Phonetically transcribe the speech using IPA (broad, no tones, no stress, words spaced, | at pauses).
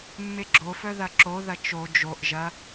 mːeɡ͡ǁofœ ðɐǁoðɐ t͡ʃo d͡ʒoʔ ʒɐ